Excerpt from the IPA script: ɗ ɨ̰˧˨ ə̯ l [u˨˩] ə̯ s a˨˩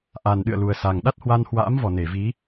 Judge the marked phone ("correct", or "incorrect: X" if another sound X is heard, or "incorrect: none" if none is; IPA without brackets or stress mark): correct